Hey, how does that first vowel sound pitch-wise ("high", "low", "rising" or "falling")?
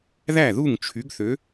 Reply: falling